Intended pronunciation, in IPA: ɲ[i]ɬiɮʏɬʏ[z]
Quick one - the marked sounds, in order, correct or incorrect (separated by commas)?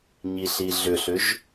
correct, incorrect